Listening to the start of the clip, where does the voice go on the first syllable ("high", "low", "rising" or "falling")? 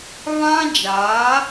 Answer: high